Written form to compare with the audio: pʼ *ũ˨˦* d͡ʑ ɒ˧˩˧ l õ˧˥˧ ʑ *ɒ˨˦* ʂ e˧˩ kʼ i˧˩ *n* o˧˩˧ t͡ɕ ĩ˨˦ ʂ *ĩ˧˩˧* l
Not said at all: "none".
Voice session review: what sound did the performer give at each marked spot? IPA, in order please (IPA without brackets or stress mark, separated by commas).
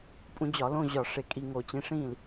ũ˨˦, ɒ˧˩, ŋ, ĩ˥˩